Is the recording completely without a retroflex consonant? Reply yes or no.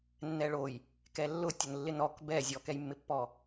no